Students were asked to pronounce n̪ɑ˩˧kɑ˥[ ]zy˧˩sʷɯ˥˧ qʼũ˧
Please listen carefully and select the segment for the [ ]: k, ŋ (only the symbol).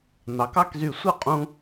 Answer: k